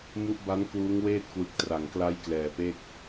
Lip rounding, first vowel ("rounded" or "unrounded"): rounded